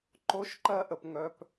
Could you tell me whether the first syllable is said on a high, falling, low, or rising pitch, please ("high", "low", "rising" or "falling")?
high